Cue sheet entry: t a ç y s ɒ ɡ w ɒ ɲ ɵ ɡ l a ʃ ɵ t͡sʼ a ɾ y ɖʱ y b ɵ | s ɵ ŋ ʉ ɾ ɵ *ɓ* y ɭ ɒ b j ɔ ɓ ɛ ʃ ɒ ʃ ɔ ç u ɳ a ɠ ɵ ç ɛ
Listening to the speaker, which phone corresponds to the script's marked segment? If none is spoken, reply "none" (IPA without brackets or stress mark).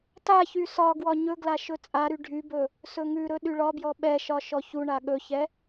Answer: ɗ